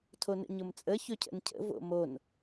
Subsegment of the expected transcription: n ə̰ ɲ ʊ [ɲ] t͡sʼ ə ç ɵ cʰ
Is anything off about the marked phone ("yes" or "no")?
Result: yes